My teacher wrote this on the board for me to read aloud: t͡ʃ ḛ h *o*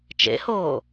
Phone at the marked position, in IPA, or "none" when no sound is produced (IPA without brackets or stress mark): oː